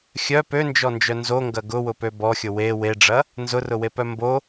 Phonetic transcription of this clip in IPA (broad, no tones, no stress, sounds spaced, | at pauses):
xʲ œ p ø n d͡ʒ ɔ n d͡ʒ œ n z o ŋ ɡ ɐ ɡ ʊ w ʊ p ø b ɔ xʲ ʊ w e w e ɖ͡ʐ ɐ | n z ʊ r ʊ w e p œ m b o